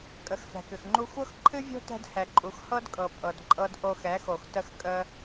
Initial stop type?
ejective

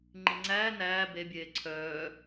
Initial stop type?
click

